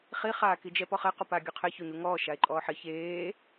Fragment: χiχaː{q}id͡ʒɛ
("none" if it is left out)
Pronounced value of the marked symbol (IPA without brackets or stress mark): k